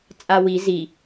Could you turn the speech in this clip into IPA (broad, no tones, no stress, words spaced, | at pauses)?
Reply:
t͡sʼawi zi